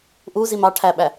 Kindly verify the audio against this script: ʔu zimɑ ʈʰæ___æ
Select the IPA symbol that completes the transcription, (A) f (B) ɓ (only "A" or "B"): B